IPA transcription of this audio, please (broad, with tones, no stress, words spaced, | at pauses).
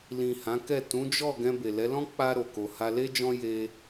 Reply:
lĩ˨ hã˨˦kɛ˦˨ tũ˨˦d͡ʒɔ˦˨ ɡɛ̃˧be˨lɛ˨˦lɔ̃˦ k͡pa˧ ɾo˨ko˨ ha˧le˦d͡ʒɔ̃˦ je˧